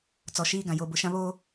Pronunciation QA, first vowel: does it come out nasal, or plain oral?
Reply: oral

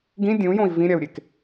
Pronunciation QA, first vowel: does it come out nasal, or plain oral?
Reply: nasal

